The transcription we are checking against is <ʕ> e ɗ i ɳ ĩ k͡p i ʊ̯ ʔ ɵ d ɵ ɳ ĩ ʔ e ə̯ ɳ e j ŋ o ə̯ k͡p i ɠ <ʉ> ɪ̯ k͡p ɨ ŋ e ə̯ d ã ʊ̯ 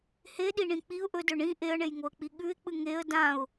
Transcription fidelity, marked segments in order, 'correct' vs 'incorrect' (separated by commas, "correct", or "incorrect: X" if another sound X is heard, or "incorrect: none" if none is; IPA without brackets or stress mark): incorrect: h, correct